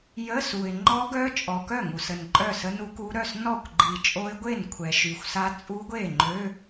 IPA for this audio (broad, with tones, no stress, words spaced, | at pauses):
jə˧˥˧su˨ɪ̯ ŋ͡ǃɔ˦˥ɡœ˦˥ t͡ʃʼɔ˨ kœ˥˩ŋu˨sə˨n ǃʼœ˥˩sə˦˥nu˦˥ku˦˥ ɾœ˥˩s nɔ˥˩kʷɡ͡ǃi˨ t͡ʃʼo˦˥ɪ̯ɡʷe˥˩nkʷʰɛ˨ ʃy˨xʷsa˦˥ t͡sʼu˦˥ɡʷe˥˩ŋ͡ǃø˧˥˧